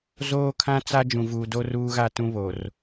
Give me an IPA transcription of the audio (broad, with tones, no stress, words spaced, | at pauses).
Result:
zoː˦kʰã˦t͡sa˦ d͡ʒũ˨vuː˨do˦ ruː˦ɣaː˦tũ˦βo˨r